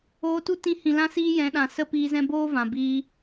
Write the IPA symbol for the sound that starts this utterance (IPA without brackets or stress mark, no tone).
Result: oː